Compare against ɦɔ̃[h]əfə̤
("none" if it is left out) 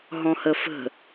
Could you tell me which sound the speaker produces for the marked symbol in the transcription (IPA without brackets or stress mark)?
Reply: h